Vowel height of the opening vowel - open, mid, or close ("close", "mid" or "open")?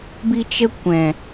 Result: close